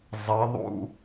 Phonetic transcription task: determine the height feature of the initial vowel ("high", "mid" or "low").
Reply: mid